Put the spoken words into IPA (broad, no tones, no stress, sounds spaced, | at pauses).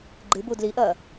ɡ͡ǃ ɨ b u d l i ʔ ɐ